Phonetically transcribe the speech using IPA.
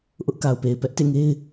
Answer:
ʔʊ˦ʔka˨ʊ̯pe˨ɪ̯ pɛ˦ʔtḛ˦˨ ŋe˦ɪ̯

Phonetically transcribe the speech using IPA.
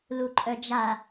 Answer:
luǃʼœd͡ʒa

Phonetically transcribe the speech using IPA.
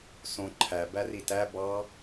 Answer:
sõ ǃʰæbæri tæ bɑ

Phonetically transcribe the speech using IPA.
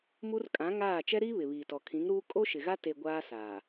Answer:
mu˦r kʼã˨˦ŋaː˦˨ t͡ʃɛ˦ɾiː˦ βɪ˨βiː˨tɔ˨ kʰĩ˨˦ŋɾuː˦ kʼo˦ʃɪ˨ɣa˦ te˨ ɡʷaː˦saː˨

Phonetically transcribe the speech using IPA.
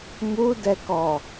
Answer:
mudɛkɔ

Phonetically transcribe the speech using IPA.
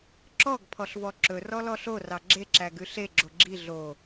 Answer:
ǁɔɡ pʰɔɬvɔǁɵ rɔlɔɬo rɑɡ͡ǁe ǁæɡʉɬe ɡ͡ǁoɡ͡ǁi ɮo

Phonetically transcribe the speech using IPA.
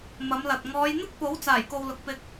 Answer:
mɐ˨˧mlɐ˨t̚ ŋɔː˨˧jn̪ɪ˥k̚po˨˥w t͡saː˨˩jko˨w lʊ˨k̚pɪ˧k̚

